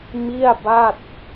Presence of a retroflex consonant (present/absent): absent